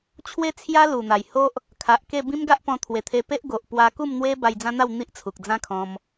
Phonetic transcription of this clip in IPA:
t͡ɕʰ w e˦ t͡sʰ j a˦ l u˨˩ n̪ a˨˩ j h o˦ ʔ | kʰ a˨ ʔ k e˥˧ b ĩ˦ m ɡ a˦ ʔ p ɔ̃˧ t̪ʰ w e˨˩ t̪ʰ e˧ p e˦ ʔ ɡ o˨ ʔ p w a˧ k u˥˧ m n̪ w e˦ b a˧ j d͡z ã˦ n̪ a˥˧ w n̪ i˦ ʔ t͡sʰ u˨ k̚ d͡z ã˦ kʰ ɔ̃˧ m

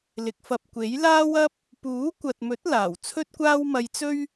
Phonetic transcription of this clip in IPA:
l ɪ˨˥ k̚ f ɐ˧ p̚ kʷ e˨˥ j l aː˥ w ɐ˥ p̚ | p uː˨˥ kʷ ɐ˨ t̚ m ɵ˨˥ t̚ l aː˨˩ w t͡sʰ ɵ˥ t̚ kʷ aː˥ w m ɐ˧ j t͡s ɵ˥ ɥ

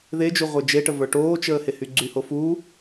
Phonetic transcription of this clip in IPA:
ð e d͡ʒ u ʁʷ ə˞ d͡ʒ e ʈ ə v ə˞ ʈ oː t͡ʃ əː h e h y ɡ͡ǀ y h o f uː

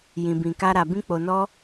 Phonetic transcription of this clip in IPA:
j ĩ˨ b ĩ˨ k a˨ ɾ a˨ b ĩ˧ k͡p o˨ n ɔ˧

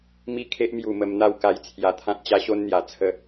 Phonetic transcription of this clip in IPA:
m i˥˧ kʰ e˦ ʔ m j u˨˩ m ə˧ m n̪ a˥˧ w k a˧ j t͡sʰ j a˧ t̪ʰ ã˦ t̚ t͡ɕ a˦ ɕ o˦ n n̪ j a˨˩ t͡sʰ ə˧

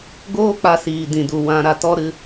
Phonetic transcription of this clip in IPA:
ɡ oː˦ k͡p a˧ s iː˨ d ĩ˨ d u˨ w ã˧ ɾ a˧ t ɔ˦ ɾ ɨ˧

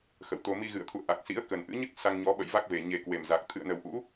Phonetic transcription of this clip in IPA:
x ə̰˧˨ w t̪ o˧ m i˧ ɣ ɨ̰˧˨ ə̯ t̪ʰ ṵ˧˨ ə̯ ʔ a˨˩ k̚ s ḭ˧˥ ə̯ k ə˨˩ n ʔ ɨ̰˧˥ ɲ ɨ˦˥ k̚ s a˧ ŋ ɲ ɔ˨˦ ɓ ə̰˧˨ j v a˦˥ k̚ v e˨˩ ɲ e˨˩ k w e˨˩ m z a˨˩ k̚ t̪ʰ ɨ̰˧˨ ə̯ n ə˨˩ w ʔ ṵ˧˥

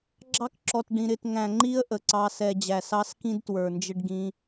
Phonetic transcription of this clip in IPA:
ɡ͡ǁ ɑ˦ k ǁ ɔ˨ t ɖ ĩ˨ ɾ ɪ˦˨ t ŋ æ̃˨ ŋ͡ǃ i˦ ə̯ ʔ ə˨ ǀ ɑ˧ s ɛ˧ d͡ʑ æ˨ s ɑ˦ s k ĩ˦ d t w ə˞˨ n d͡ʒ ɪ˦ ɖ ɡ ĩ˦

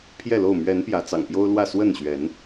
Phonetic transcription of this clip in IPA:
pʰ j ɛ˥˨ l o˥˨ ʊ̯ m ɥ ɛ˨˦ n p j ä˨˦ t͡s ɑ̰˨˩ ŋ p j o˦ ʊ̯ l w ä˥˨ s w ə˥˨ n ɕ ɥ ɛ˨˦ n

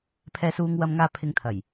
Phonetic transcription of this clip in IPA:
pʰ ɛː˧ s uː˧ ŋ w ɐ˧ m ŋ aː˧ pʰ ɪ˨˧ ŋ t̪ʰ ɐ˨˩ j

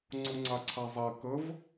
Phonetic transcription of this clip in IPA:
ŋ͡ǀ u ŋ͡ǀ a ǀʰ a zˤ ɛ k ə v

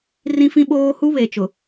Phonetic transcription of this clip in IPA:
r ĩ˦ f ĩ˦ ɓ oː˦ h u˦ β e˨ t͡ʃ ʊ˨

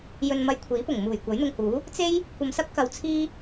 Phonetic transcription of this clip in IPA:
j ɵ˧ n m ɐ˧ j kʷʰ iː˨˥ p ʊ˨˩ ŋ m uː˨˩ j kʷ ɐ˨˥ j n̪ ʊ˧ ŋ h uː˨˥ | t͡s e˥ j | kʷ ɐ˧ m s ɐ˥ p̚ k ɐ˧ w t͡sʰ iː˥

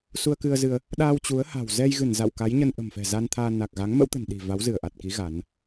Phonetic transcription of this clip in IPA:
s u˧ ə̯ k ɨ˧ ə̯ z ɨ˧ ə̯ | ɗ aː˧ w t͡ɕ u˨˦ ə̯ h a̤˨˩ w z ɛ˧ j ɣ ɨ˧˩ n z a̰˧˨ w k a˨˦ j ɲ ə˧ n ʔ ə̤˨˩ m f ɛ̤˨˩ z a˧ n t̪ʰ aː˧ n a˨˩ k̚ ɣ a˨˦ ŋ m ə̰˧˥ w t̪ ə̤˨˩ n ɗ i̤˨˩ v a˨˦ w z ɨ˧˩ ə̯ ʔ a˨˩ t̚ k i˨˦ ɣ a˨˦ n

